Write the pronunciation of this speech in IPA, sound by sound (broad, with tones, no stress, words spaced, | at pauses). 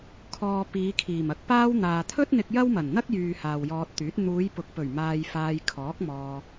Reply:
kʰɔː˨ piː˨˧kʰiː˨˩m ɐ˨˥k̚paː˥w n̪aː˨t̪ʰɵ˥t̚n̪ɪ˧k̚ jɐ˥wmɐ˨˩nn̪ɐ˥k̚jyː˨ haː˨wjɔː˧t̚ t̪yː˨˥t̚ n̪uː˨˧jpʊ˨k̚pɵ˨˩ɥ maː˧jfaː˧jkʰɔː˨˥k̚ mɔː˧